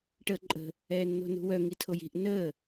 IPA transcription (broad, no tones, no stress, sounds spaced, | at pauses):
ʈ əː ǃʼ ə̤ | ɛː nː o̤ n ṳ w œ ŋ i tʰ o j i̤ ʔ n əː